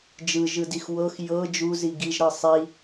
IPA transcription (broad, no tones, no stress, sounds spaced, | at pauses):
d͡ʒ ɯ ʒ ɯ d i x w ɤ x j ɤ d͡ʒ u z i ɡ i ʒ ɾ ɤ sˤ i